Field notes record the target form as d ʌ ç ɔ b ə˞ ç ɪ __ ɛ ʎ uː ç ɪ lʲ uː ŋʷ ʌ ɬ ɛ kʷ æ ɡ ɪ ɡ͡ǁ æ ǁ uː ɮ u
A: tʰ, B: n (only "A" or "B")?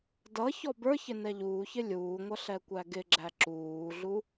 B